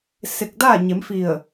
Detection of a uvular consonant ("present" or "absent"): absent